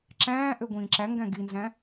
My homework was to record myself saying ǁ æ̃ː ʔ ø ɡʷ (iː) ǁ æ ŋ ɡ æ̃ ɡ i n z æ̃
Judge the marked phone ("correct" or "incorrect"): incorrect